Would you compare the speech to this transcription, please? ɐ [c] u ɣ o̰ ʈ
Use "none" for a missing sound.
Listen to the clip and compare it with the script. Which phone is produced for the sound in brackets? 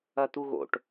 t̪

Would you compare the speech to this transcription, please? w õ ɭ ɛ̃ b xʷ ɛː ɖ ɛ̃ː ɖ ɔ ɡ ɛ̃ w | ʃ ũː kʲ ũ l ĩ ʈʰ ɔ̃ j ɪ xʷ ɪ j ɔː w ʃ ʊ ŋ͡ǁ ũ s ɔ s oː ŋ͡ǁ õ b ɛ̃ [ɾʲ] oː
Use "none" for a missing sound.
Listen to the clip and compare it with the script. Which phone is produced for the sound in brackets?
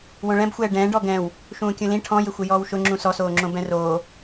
r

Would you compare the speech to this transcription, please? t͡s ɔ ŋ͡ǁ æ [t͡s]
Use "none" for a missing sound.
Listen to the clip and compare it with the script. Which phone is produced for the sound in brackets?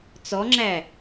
none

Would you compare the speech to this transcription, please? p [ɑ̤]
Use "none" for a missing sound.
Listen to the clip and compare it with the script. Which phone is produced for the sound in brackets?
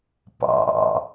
ɑ̰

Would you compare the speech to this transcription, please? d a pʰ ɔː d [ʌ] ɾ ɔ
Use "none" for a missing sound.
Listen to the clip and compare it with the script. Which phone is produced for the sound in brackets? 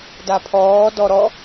ɔ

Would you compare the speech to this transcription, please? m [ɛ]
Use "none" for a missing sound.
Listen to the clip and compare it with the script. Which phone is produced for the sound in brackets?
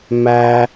æ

